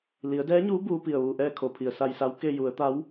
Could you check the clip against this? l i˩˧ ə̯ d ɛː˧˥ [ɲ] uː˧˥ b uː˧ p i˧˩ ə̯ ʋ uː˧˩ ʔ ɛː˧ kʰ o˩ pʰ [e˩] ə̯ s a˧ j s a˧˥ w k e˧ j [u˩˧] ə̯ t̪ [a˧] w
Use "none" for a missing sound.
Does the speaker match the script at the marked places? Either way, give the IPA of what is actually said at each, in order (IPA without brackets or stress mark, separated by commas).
ɲ, i˩, u˩˧, a˧˥